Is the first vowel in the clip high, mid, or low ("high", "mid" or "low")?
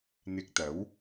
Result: high